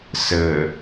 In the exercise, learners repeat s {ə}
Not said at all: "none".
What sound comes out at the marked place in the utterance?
ə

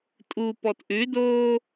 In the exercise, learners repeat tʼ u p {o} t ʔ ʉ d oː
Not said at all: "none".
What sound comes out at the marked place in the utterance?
ɔ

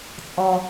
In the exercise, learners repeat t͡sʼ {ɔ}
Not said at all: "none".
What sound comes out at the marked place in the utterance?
ɔ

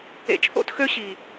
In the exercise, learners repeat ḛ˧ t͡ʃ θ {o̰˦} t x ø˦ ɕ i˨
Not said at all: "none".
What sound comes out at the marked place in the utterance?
o̰˦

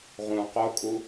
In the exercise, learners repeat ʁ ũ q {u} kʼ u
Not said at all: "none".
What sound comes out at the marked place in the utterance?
o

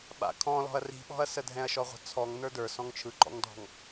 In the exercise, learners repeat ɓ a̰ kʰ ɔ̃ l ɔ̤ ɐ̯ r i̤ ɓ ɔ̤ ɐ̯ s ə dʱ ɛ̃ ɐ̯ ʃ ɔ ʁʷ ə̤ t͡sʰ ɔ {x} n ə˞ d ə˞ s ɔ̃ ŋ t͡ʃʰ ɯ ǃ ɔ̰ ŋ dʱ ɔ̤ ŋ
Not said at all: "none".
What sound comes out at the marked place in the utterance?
ŋ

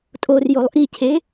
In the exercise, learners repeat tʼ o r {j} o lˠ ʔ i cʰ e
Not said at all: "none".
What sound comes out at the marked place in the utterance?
j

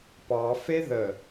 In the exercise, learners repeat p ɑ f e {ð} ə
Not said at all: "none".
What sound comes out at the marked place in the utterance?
ð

